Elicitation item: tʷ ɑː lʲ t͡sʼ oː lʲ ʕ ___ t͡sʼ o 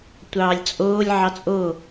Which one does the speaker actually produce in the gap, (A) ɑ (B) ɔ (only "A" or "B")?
A